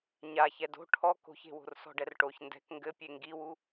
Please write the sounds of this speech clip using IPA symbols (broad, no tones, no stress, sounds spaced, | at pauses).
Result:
ɲ a ç ɛ d o̤ ʈʰ ɔ k o̤ ç e̤ w o̤ r s ɔ̤ ɖ ɛ r ʈ o ç n d ɛ̤ k ŋ ɡ ɘ pʲ e ŋ ɡ i w u